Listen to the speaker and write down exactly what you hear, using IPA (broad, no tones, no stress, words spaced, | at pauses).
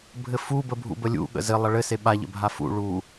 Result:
bʱɘfu bəbʱṵbəlʲṵ ɠə̰zɘ lˠɐɭɘ seɓa ʎə̰bʱafṵ ɭu